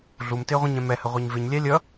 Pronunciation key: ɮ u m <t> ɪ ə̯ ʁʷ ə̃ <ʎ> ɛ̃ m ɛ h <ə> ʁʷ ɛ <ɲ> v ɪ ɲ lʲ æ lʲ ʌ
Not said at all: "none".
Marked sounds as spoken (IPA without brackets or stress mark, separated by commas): t, ɲ, ə, ɲ